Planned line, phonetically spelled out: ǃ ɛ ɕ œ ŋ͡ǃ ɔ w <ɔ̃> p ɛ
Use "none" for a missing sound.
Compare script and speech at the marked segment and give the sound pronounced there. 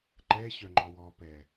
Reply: ɔ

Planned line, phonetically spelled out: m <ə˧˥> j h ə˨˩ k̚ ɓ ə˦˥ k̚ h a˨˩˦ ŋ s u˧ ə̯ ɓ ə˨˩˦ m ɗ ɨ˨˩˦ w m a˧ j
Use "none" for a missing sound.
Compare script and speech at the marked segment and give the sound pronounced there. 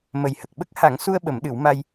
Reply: ə˨˩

